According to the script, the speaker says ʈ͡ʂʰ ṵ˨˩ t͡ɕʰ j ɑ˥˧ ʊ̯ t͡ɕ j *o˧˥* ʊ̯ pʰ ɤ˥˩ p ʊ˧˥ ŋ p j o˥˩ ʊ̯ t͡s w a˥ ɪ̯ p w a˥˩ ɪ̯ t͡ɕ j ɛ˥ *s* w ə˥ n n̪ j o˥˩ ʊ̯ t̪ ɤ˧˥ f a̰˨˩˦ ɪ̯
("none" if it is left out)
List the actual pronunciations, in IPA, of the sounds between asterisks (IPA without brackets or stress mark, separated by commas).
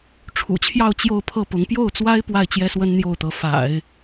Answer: o˥˧, s